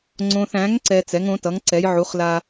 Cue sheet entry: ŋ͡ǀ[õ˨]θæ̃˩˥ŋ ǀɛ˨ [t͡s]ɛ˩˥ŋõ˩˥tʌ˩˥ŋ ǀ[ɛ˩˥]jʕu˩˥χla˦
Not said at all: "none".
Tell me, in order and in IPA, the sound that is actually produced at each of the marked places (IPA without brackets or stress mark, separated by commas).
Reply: õ˨, t͡s, ɛ˩˥